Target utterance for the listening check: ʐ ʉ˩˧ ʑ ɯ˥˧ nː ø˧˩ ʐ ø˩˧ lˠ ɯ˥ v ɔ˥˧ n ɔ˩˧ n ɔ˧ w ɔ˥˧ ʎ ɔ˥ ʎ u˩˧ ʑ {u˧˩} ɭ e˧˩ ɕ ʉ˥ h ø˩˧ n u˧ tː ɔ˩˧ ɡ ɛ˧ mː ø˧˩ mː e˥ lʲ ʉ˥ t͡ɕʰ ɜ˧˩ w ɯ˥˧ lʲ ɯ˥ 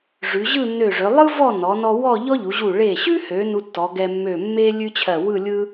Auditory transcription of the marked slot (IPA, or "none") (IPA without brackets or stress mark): u˧˩